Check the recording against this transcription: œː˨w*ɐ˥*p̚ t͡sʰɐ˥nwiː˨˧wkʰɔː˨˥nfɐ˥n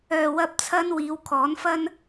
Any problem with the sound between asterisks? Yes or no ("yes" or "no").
yes